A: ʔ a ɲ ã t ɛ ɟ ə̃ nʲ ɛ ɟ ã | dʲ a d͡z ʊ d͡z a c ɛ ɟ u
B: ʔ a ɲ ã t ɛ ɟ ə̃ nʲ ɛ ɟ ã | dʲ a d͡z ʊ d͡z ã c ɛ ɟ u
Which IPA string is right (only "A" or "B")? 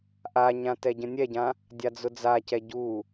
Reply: A